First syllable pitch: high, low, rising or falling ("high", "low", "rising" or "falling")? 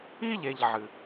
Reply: high